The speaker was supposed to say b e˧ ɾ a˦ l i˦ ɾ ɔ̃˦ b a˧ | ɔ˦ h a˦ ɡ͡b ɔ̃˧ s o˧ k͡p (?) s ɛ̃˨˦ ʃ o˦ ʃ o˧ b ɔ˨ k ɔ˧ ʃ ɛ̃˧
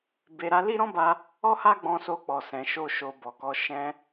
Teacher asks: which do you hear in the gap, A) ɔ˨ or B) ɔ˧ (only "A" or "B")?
A